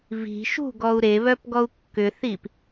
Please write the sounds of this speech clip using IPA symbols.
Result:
v i̤ ʃ ṳ ɡ ɔ u̯ ɾ e β œ p ɡ ɔ u̯ kː ʏ θ i p

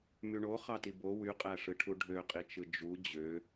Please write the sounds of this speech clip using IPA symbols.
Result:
m y ɳ o χ ɑ t i b o w y qʼ æ ʂ ɯ ʈʰ u ɖʱ ø qʼ i t͡ʃ ɯ d͡ʒ u d͡ʑ ø

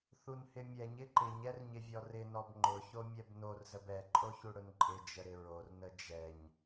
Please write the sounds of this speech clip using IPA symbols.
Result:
θ u n h ɪ mʲ ɛ ɲ ɪ ǃ ɪ ɲ ɛ r ɲ ɪ vʲ ɔ r ɪ n ɔ b ŋ͡ǃ ʊ ç o mʲ ɛ b n o r z ə b ɛ ǃʼ o ç u ɽ ʊ n ǃʼ ɪ d͡ʒ ə ɾ ɪ ɹ o r n ə d͡ʒ ɛ ɲ

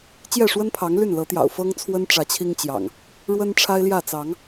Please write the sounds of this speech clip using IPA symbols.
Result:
t͡ɕ j ɛ˥˨ ʂ w ə˦ n pʰ ɑ˨˦ ŋ l y˥˨ n l ɤ˨˦ t̪ j ɑ̰˨˩ ʊ̯ f ɤ˦ ŋ t͡sʰ w ə˦ n ʈ͡ʂ ä˨˦ t͡ɕʰ i˦ ŋ t͡ɕ j ɑ̰˨˩ ŋ | ɻ w ə˦ n ʈ͡ʂʰ a˦ ɪ̯ l j ä˥˨ t͡s ɑ˨˦ ŋ

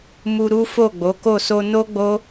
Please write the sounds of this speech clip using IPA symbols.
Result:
m u˧ ɾ u˦ f o˦˨ ɡ͡b o˨˦ k o˦˨ s o˧ n o˦ ɡ͡b o˦

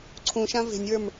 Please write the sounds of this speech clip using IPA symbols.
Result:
ǀʰ ũ ʃ ã v e̤ nʲ w ə˞ m

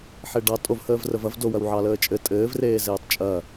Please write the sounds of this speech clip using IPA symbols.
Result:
ħ e ɖ ɑ tʼ o v h əː v r ə v ɐ v d o w ɐ w ʕ ɑ l əː t͡ʃʼ ɘ tʼ ɘː v r eː z eː tˤ t͡ʃʼ ɐ

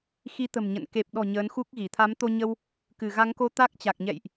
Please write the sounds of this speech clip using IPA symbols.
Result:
x i˨˦ t̪ ə̤˨˩ m ɲ ə̰˧˨ n k e˨˩ p̚ ɗ ɔ̤˨˩ ɲ əː˨˦ n x u˦˥ k̚ ɣ i˧˩ t̪ʰ a˨˦ m t̪ o˧ ɲ ə˧ w | k ɨ˧˩ ɣ a˨˦ ŋ k o˧ t̪ a˦˥ k̚ t͡ɕ a˨˩ k̚ ɲ ɛ̰˧˨ j ʔ

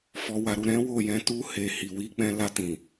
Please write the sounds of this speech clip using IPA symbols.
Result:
f ɔ˨ w a˨ ɾ u˨ ɾ ɛ̃˨˦ w o˦˨ j ɛ̃˧ t u˧ h e˨ h i˨ w i˨˦ k͡p ɛ̃˧ l a˧ t ĩ˨

